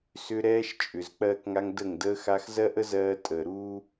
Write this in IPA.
sʏ˦ ɾɛː˦ʃt͡ʃʼʏ˨z k͡pɜː˦kŋa˦ŋ də˦˨ŋ dəː˦xa˦x zɜ˦ʔə˦zɜː˧ tʼəː˨ɾuː˦

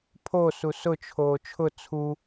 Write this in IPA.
pʰo susʊt͡ʃʰoː t͡ʃʰʊ t͡sʰu

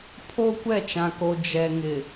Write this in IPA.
pʰo˦ kʷɛ˦˨t͡ʃã˨ko˨ d͡ʒɛ˨ŋɪ˨

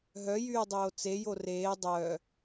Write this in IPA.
ɦœjyː dˤoːt͡se joreː dˤœː

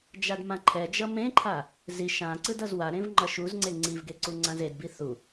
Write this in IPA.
d͡ʒadmãǃʰɛd͡ʒʌ mẽǃʰa | ziʃ ã ǀɯdʌzwaɾẽv ŋ͡ǃʌʃuzŋ͡ǀe ŋ͡ǀivɡe ǀuŋ͡ǀãzedbi θu

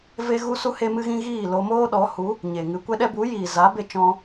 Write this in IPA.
ve˦ɣu˦su˦ he˦mɨ˦ɣĩ˦ ɣiː˦˨lo˧moː˦ ɗɔ˨˦hu˨˦ | ɲe˨ŋɨ˧ kʷɛ˧ɗɛ˧ bu˨˦jiː˨za˨˦ be˧t͡ʃɔ̃˧

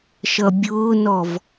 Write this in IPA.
ʃʌbʲʊːnɔv

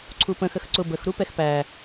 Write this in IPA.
ǀʰupə̃ xəxǀʊ bəx ɾupɛxpæ

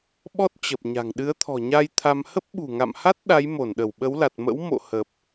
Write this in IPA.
ɓɔ˦˥t̚ t͡ɕə˨˩p̚ɲa̤˨˩ŋ ɗɨ˨˦ə̯t̪ʰɔ̤˨˩ɲa˧j t̪ʰa˧m hə˦˥p̚ɓṳ˨˩ŋa̰˧˨mha˦˥t̚ ɗa˨˦jmo˧˩n ɗə˧˩wɓə˨˦wla˨˩t̚mə̰˧˥w mo̰˧˨ hə˨˩p̚

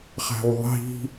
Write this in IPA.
χæ̤wðˤi̤

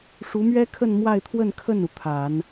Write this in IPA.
ʂu˧˥mɥɛ˥kʰə˥˧n mwa˥˧ɪ̯t̪ʰwə˥˧n kʰə˥˩nu˩ t̪ʰa˨˩˦n

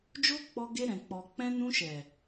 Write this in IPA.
d͡ʒo˦k͡pɔ˧ɡe˧ ɾɛ̃˨k͡pɔ˨ k͡pɛ̃˧nũ˧ʃɛ˨

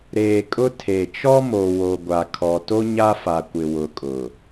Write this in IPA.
ɾeː˨kʼʊ˦ tʰe˨ t͡ʃɔ˦mo˨ wo˨ɡʷa˨ kʰɔ˨ to˦ ɲa˦fa˨kʷɪ˨ wʊ˨kʼʊ˨

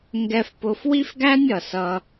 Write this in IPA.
ŋɡɛ˥fpʊ˥f wi˥fɡæ˥nʲ ʌ˩sʌ˧

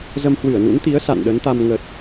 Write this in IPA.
zə˧mhwɨ˧˩ə̯nṵ˧˥nt̪i˨˦ə̯ sa̰˧˨nɗə˨˦nt̪a˧m ŋə˨˩t̚

